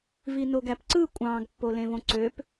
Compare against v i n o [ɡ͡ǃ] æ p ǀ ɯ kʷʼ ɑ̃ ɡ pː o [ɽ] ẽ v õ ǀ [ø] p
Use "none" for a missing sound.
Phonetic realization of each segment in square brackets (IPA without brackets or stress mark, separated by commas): ɡ, l, ø